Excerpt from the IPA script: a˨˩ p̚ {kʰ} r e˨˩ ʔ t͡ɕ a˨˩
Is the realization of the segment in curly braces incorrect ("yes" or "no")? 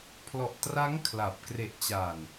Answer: yes